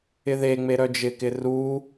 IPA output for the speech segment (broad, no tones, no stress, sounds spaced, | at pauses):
ɪ ð e ŋ͡m e ɾ œ d͡ʒ ɪ k ɪ r u